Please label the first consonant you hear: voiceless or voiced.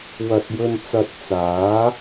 voiced